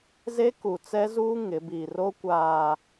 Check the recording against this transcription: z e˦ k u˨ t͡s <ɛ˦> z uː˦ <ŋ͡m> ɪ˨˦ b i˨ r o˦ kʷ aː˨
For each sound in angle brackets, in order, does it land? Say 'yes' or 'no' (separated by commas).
yes, no